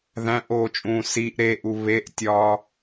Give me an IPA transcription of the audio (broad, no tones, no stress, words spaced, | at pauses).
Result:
ðæ̃ʔoːt͡ʃʼũː siʔ ɾeʔu βeʔtʲɒː